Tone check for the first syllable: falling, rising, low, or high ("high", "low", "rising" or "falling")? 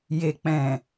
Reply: low